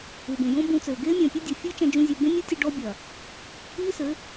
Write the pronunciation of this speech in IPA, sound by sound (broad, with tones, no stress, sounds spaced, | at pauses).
u˨ b ẽ˨ j õ˦ b ũ˧ t͡s ɘː˨ ɡ eː˦ mʲ ɐ̃ː˨ pʲ o˦ dʲ o˨ fʲ ɘː˦ t͡ʃ ɐ̃˧ d͡ʒ ũ˦ zʲ e˧ b ẽ˦ nʲ u˦ tʲ u˧ ɖ ɔ˦ bʲ ɐ˨ | iː˦ s ɘ˨˦